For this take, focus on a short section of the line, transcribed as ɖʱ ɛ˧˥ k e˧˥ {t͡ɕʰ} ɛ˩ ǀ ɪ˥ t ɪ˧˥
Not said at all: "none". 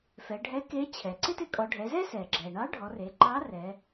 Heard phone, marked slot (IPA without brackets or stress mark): t͡ɕʰ